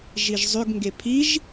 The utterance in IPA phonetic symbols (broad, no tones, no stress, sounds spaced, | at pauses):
ʒ i ʒ zˤ ʏ ɡ ŋ ɡ e pʰ i ʒ